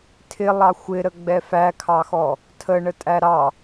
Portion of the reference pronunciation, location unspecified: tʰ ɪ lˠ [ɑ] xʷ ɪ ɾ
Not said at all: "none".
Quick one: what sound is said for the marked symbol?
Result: ɑ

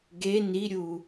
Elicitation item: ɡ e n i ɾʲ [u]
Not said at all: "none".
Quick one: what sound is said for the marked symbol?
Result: u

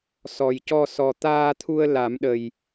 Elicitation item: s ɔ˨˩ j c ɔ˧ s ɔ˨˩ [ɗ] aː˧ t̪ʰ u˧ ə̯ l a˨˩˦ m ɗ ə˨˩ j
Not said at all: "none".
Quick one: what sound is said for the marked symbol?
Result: t̪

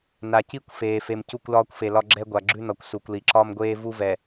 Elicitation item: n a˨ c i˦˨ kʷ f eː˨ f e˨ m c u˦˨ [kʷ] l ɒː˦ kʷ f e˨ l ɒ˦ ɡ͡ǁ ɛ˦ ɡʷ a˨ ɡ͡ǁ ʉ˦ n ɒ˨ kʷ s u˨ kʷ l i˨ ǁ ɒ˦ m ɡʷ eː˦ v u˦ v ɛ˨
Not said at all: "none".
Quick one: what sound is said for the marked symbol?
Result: kʷ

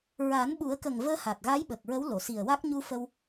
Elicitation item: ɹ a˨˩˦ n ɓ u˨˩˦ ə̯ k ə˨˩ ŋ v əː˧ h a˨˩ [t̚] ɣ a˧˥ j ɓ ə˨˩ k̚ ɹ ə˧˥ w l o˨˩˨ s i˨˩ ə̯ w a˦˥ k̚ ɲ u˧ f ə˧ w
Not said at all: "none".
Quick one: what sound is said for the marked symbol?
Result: t̚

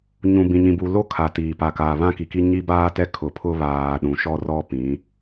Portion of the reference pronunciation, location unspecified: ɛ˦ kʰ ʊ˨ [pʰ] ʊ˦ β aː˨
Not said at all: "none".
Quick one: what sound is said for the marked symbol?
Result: pʰ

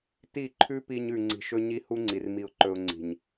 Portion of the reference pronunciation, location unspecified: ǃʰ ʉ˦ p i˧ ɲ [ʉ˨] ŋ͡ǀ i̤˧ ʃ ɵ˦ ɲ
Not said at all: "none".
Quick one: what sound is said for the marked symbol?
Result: ʉ˨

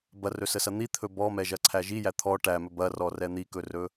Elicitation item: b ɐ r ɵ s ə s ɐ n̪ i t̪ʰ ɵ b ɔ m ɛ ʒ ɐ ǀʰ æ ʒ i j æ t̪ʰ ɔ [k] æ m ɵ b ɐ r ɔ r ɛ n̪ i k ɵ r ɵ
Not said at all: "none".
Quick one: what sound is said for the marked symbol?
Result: ʈ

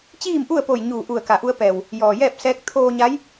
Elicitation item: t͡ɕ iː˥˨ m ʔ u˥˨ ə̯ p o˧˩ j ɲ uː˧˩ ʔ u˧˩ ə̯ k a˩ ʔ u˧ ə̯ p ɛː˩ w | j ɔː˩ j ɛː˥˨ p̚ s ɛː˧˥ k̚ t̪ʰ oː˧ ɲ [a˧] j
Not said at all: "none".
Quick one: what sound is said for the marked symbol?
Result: a˧˥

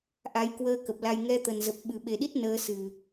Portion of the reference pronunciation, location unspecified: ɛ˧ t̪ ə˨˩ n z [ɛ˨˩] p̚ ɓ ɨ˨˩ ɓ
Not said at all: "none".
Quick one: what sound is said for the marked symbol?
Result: ə˨˩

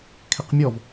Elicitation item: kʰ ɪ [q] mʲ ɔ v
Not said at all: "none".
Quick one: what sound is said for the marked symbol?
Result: q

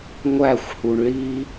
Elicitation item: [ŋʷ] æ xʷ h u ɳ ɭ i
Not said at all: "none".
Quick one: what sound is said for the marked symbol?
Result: ŋʷ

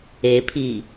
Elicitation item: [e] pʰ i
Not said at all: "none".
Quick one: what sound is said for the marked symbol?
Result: e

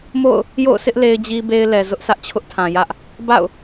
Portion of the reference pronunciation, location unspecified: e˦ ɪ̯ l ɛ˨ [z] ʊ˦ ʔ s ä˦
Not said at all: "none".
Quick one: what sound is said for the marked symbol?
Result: z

